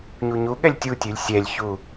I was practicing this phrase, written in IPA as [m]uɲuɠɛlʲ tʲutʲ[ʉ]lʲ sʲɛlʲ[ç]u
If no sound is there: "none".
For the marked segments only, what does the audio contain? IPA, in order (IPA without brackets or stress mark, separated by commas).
ɲ, ʉ, ç